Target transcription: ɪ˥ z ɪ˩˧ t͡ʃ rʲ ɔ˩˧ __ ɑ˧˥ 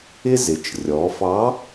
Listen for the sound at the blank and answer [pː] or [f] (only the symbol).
f